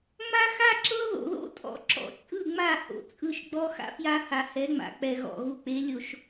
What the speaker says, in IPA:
ŋ͡ma˦xa˦ǁɤ˦ ðo̰˨ðo̰˦tʼɔ̰˨ ǁɔ̰˨t͡ʃʼɯ˦˨ŋ͡ma˦˨ ho̰˨t͡sʼɯ˦˨ʃɡ͡bɔ˦ xa̰˦fja˦ha˨ hɛ˨˦ŋ͡ma̰˨k͡pɛ˨ɣɔ̰˨ ɣu˨k͡pe˨˦lʲo˨ʃ

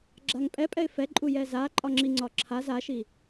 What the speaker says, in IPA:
ɡ͡ǁaŋpʼɛpʼɛɪ̯ fɛ ǃʼujɛza ǃʼɒŋ͡ǁiŋ͡ǀɒǁʰaz aʃi

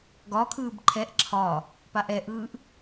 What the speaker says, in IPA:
ɡɒkʰɯːb ǃʰɛʔ ǁʰɒ | paʔɛʔɯːʔ

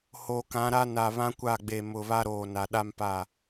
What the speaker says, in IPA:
hoː˨kã˨˦ɾa˦ na˨βã˦kʷa˦˨ ɡ͡be˨mʊ˨βa˦ɾoː˨ na˨ɗa˦mpa˦˨

